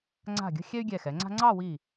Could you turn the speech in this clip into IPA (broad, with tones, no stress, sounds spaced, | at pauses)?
ŋ͡ǀ a̤˧˩ ɡʲ ə̤˧ xʲ ɛ˥ y̯ ɡʲ ɛ˧˩ x ɛ˩˧ ŋ͡ǀ a̤˥ ŋ͡ǀ ɑ˥˧ w i˧˩